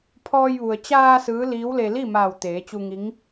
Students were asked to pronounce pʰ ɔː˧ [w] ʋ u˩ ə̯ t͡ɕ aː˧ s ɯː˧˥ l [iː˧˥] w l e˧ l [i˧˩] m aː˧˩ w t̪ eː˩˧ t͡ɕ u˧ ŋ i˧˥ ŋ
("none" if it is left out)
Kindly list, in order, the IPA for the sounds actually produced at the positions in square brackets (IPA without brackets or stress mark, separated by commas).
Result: j, iː˧˥, i˥˨